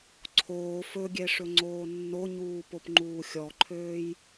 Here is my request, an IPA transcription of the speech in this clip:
ǀʰ oː f ɵ ɡʲ ɛ ʂ ɵ ŋ͡ǀ oː nː o ɲ uː p o p ŋ͡ǃ uː xʲ ɔ ǃʰ øː j

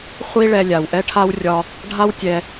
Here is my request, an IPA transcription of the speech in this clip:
χʷ i˥ ɭ ɛ˧ lʲ a˩ w ʔ ɛ˥ ʈʰ a˥ w rʲ ɒ˧ | ɖʱ a˥ w tʲ ɛ˧

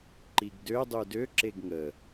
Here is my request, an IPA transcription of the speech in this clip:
ǃ i ɡ d ø dˤ u d ø ǁ e ɡ ŋ ə

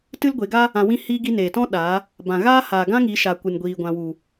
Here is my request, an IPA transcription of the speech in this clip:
t ɨ˦ l ɡʷ e˨˦ ɡ a˦ | ã˧ w ĩ˦ h iː˦ ɡ i˦ n eː˨ t ɔ̃˦ ɗ aː˨˦ | b ã˨ ɣ aː˦ h aː˨ ɡ ã˦ ŋ i˨˦ ʃ a˨ kʷ ɨ˨ n ɡʷ iː˨ ɡʷ ã˨ w u˨

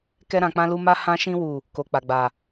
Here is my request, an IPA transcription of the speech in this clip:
k ɛ˦ ɾ ã˧ k͡p ã˦ l u˦ m a˦ h ã˦ ʃ ĩ˦ w u˦˨ | k o˨ k͡p a˨ ɡ͡b a˨

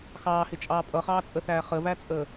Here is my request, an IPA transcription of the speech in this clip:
x ɑː h ɪ t͡ʃʼ ɑː pʼ ʌ χ ɑː t͡sʼ ə θ æː χ ə v æ t͡sʼ əː

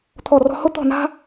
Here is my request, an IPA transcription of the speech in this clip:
t̪ʰ ɔ˥˧ r ɔ̤˥ h ʊ˥ t̪ ɔ̤˥˧ n a̤˥

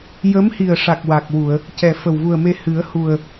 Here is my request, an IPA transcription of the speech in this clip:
j ə˧˥ m h i˨˩ ə̯ ʂ a˨˩ k̚ w a˨˩ k̚ w u˨˩˨ ə̯ | c ɛ˨˩ f ə˨˩ w v u˨˩ ə̯ m e˧ h ɨ˨˩˦ ə̯ h u˨˩ ə̯

